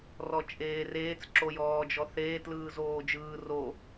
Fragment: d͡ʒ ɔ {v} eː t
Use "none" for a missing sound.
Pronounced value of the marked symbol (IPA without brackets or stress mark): θ